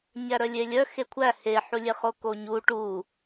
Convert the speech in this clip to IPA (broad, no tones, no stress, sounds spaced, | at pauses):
ɲ æ ɾ œ lʲ e lʲ œ x e kʷʰ æ h e ħ u lʲ e χ o k o ɲ u ʈ u